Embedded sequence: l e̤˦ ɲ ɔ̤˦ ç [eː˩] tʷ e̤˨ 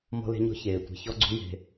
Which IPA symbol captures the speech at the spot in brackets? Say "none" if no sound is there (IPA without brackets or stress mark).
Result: eː˩